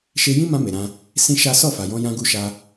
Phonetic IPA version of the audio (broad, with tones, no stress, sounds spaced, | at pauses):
ʃ e˧ j ĩ˦ m ã˧ m e˨ ɾ ã˧ | s ĩ˦ ʃ a˦ s ɔ˦˨ f a˨ j ɔ̃˧ j ã˧ ɡ u˧ ʃ a˧